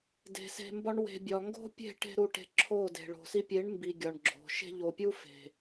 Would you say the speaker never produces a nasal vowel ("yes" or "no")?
yes